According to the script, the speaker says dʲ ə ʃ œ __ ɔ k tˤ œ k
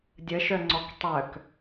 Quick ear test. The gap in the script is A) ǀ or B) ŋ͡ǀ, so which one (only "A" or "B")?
B